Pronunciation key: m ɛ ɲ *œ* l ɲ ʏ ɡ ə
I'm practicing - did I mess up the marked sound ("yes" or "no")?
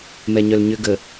no